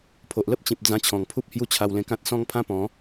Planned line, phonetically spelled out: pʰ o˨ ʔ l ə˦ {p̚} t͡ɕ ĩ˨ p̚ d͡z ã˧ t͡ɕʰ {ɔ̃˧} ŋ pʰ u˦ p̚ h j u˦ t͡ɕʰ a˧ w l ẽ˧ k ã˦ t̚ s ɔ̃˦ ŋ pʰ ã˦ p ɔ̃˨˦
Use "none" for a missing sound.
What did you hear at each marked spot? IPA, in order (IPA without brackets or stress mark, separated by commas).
p̚, ɔ̃˨˩